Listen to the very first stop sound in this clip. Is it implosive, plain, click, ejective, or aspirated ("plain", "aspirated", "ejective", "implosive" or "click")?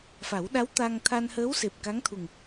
implosive